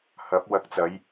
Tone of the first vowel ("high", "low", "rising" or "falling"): rising